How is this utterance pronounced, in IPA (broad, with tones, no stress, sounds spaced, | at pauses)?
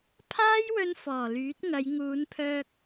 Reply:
pʰ aː˥ j w ɵ˧ n f ɔː˨˩ l yː˨˥ t̚ ŋ ɐ˨˧ j ŋ uː˨˧ n pʰ œː˧ k̚